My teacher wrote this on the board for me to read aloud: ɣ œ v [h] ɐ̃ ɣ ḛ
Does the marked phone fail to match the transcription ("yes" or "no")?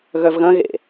yes